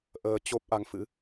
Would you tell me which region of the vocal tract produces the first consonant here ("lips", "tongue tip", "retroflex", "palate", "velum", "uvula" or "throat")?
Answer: throat